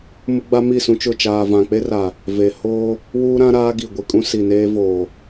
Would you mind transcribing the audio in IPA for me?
m ʊ˦ ɡ͡b a˦ m i˦˨ s ũ˦ t͡ʃ ʊ˦˨ t͡ʃ aː˨ v ã˨ k͡p e˦ r a˨ | v e˨ h oː˦ | w uː˦ ɾ ã˦ ɾ aː˦ ɡ i˨ ɡʷ i˨ kʼ ũ˦ s i˨ n eː˦ v oː˨

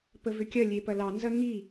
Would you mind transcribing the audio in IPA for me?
p ə v ʏ kʲ ɐ lʲ e p ɐ l ɑ n z ɐ ŋ i

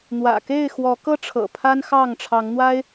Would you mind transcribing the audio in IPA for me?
n̪ w ä̰˨˩ k e˥˨ ɪ̯ x w ɔ˨˦ k ɤ˦ ʈ͡ʂʰ ɤ̰˨˩ pʰ a˦ n x ɑ˥˨ ŋ ʈ͡ʂʰ ɑ˨˦ ŋ n̪ w a˦ ɪ̯

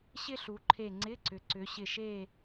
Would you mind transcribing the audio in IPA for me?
ɕ ɪ˥ ɬ u˩˧ ǃʰ e˧˩ ŋ͡ǀ ɪ˧˥˧ ǀ ʏ˩˧ ǀ ʏ˩˧ ɕ ɪ˧˩ ʃ e˥˨

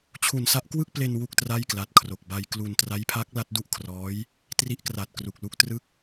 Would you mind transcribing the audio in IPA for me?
t͡ɕʰ u˨˩ n s a˦˥ ʔ k w ɯ˥˩ k̚ p l e˧ n w u˥˩ k̚ t r a˥˩ j k l a˨˩ t̚ kʰ r o˨˩ k̚ b a˧ j k l u˧ n t r a˦˥ j pʰ a˦˥ k̚ l a˦˥ t̚ d u˥˩ ʔ kʰ r ɔː˦˥ j | t r i˦˥ ʔ k r a˨˩ t̚ k r u˨˩ k̚ l u˦˥ k̚ t r ɯ˦˥ k̚

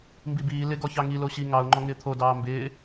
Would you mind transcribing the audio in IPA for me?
m b i b iː l ɪ ɡ ɔ ç ɑ ŋ i l o ɕ i ŋ ɑ ʊ̯ ŋ͡ǃ ɔ ŋ ɪː t̪ʰ o d ɑː m b ɪː

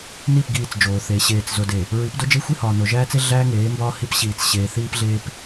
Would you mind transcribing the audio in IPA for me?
n i˦˨ p ɡ iː˦˨ t͡s d͡ʒ oː˨ θ e˨˦ ɕ eː˨ t͡s z o˨ d e˨ | ɹ i˨˦ p d o˦ d͡ʒ e˦ xʷ i˦ h ɒː˨ n o˨ ʒ æː˦ t͡s e˦ ɮ æː˦ ŋ eː˨˦ m b ɒː˦ h i˦ p ɕ iː˨ t͡s ɕ eː˨ θ iː˦ p ɮ eː˦ p

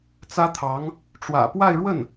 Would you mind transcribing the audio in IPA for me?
t͡s ä˥ t̪ʰ ɑ˧˥ ŋ | ʈ͡ʂ w ä̰˨˩ p w a˥˧ ɪ̯ ɻ w ə˥˩ n

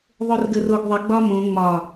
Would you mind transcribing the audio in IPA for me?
ðˤ o r ɡ ə r o ɡ ðˤ ə ɡ͡b ɒ m õ ŋ͡m ɒ

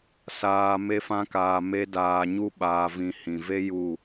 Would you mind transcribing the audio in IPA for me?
s aː˧ m e˦ f ã˦ k aː˧ m e˦ d aː˧ ɲ u˦ ɓ aː˧ v ĩ˧ h ĩ˨ v e˦ j u˦˨

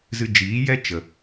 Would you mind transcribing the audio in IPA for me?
z ɨ˧ d͡ʒ iː˨˦ j ɛ˦ t͡ʃ ə˨

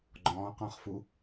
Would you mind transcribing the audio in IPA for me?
ɡ͡ǃ ɔ̃ː q ɔ̃ χ f u

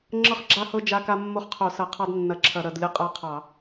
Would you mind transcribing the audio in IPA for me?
ŋ͡ǁ ɤ˦ χ ɡ͡ǁ a˦ h ɤ˦ d͡ʒ a˦ k a˦ mː o˦ χ qʰ o˧˩˧ s ɐ˧˩˧ qʰ ɑ˦ d nː ɐ˧˩˧ ǁʰ ɐ˧˩˧ ɾ ɐ˧˩˧ d lʲ ɤ˦ qʼ a˦ qʰ ɑ˧˩˧

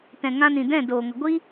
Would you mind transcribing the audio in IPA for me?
t ɛ̃˨ ŋ ã˧ n ĩ˨ d ɛ̃˦˨ d oː˨ ŋ ə˨ ɡʷ i˦

